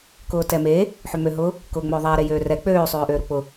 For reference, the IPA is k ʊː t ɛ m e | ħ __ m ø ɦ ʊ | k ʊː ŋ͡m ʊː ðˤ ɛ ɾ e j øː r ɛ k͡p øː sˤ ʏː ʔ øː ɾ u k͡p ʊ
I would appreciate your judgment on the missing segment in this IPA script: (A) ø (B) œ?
A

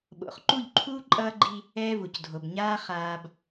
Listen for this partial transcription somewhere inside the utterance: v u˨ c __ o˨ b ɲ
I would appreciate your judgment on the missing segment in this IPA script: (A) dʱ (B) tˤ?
A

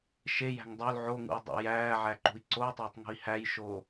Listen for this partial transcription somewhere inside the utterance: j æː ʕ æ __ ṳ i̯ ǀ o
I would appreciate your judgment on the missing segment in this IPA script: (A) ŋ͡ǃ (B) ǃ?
B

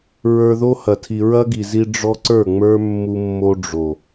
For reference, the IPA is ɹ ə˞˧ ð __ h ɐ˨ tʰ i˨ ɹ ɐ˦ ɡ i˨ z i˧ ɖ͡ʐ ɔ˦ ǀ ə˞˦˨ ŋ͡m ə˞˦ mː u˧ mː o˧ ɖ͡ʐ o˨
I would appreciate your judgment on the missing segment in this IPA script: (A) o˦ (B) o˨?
A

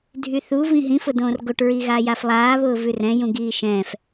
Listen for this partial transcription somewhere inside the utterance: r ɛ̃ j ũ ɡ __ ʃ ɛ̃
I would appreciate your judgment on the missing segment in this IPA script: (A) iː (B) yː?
A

